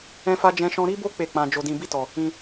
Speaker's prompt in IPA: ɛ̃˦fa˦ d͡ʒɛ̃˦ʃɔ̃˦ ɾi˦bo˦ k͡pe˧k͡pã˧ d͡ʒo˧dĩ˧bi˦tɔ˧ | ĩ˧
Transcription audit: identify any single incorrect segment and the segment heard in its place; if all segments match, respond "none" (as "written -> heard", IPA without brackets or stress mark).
e˧ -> e˦˨